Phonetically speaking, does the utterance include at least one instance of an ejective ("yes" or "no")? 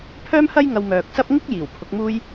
no